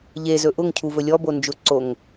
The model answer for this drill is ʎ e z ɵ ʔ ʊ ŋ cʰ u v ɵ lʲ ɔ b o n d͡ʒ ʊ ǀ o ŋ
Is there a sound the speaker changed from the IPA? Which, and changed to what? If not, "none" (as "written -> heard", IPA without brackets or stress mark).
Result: none